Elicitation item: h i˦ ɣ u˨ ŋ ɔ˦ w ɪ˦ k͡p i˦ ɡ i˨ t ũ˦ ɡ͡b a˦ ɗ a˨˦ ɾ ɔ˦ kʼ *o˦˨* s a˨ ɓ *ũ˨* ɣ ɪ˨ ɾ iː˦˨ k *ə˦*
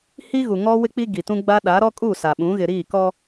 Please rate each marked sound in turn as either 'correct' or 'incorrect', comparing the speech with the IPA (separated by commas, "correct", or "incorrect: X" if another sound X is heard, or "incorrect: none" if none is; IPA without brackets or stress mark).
incorrect: u˦˨, incorrect: ũ˨˦, incorrect: ɔ˦